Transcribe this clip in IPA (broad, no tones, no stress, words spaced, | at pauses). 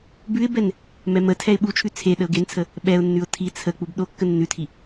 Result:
bʉɪ̯bɛn | mɛmətʰɛɪ̯ ɓut͡ʃʰʉ t͡sʰe ɗəʊ̯ɡent͡sʰə | ɓɛʊ̯nːʉʊ̯ tʰi t͡sʰə k͡pubɗokːə nːʉtʰi